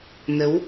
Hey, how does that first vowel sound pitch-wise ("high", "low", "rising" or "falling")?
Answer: rising